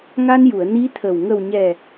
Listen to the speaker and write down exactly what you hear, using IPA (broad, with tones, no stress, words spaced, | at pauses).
ŋa˧nju˨˩˨ə̯ ni˧˥t̪ʰə˨˩w ŋə˨˩wɲɛ˨˩